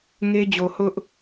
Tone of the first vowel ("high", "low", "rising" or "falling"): high